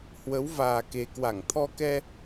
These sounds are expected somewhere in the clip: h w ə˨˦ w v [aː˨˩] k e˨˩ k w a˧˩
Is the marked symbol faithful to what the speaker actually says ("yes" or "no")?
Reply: yes